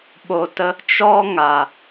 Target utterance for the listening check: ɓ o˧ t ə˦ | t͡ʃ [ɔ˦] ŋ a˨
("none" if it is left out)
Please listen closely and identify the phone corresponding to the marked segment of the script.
ɔ˦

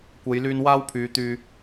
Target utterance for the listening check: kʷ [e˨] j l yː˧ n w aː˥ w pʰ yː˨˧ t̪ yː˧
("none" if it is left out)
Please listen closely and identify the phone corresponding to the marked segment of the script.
e˨˧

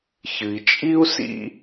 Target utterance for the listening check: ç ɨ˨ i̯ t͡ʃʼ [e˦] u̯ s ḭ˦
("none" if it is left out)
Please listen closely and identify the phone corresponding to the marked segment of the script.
i˦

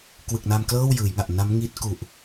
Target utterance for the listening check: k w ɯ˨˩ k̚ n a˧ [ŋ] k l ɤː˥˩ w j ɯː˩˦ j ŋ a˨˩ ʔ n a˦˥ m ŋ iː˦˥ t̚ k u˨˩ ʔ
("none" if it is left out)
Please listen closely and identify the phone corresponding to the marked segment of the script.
m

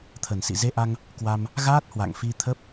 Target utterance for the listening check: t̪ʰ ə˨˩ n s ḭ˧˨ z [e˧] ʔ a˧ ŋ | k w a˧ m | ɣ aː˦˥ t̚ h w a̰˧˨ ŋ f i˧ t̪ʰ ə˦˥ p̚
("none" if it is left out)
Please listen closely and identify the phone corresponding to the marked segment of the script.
e˧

